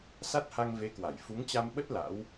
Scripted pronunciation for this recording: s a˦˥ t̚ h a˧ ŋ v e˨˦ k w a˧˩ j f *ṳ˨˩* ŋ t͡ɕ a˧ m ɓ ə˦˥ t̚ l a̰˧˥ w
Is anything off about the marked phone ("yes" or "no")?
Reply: yes